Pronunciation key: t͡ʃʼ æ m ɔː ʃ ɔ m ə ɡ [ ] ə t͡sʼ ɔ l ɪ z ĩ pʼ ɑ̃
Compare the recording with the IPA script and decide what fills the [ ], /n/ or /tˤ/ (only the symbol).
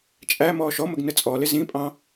n